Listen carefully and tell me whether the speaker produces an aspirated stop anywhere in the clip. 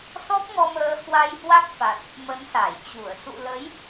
no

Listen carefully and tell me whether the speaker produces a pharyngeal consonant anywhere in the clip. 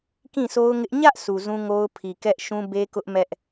no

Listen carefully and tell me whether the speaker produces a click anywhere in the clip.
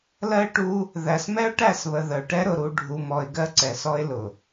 yes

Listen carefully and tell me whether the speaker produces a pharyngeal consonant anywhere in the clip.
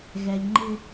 no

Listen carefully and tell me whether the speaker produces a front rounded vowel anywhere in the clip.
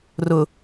no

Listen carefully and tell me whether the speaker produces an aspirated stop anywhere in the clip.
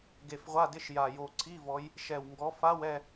yes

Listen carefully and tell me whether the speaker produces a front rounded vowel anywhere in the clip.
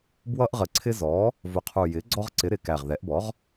no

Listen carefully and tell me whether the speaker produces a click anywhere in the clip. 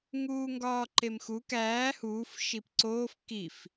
yes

